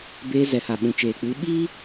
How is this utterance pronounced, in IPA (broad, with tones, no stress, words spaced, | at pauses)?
beː˧zɛ˨ha˨ ɓũ˨t͡ʃeː˨k͡pɨ˨˦ ɓiː˦